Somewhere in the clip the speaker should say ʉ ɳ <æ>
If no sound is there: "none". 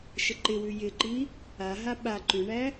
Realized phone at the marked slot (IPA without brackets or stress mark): æ